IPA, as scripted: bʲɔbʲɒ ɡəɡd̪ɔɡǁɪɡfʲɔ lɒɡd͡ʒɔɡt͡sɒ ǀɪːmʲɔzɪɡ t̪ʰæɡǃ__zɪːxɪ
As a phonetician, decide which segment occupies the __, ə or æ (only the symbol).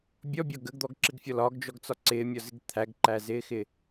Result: æ